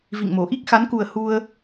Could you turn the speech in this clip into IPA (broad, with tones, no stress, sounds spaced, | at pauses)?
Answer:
v ḭ˧˨ ŋ m o˧˩ ʔ i˦˥ k̚ x a˨˦ n k u˨˩ ə̯ h u˧ ə̯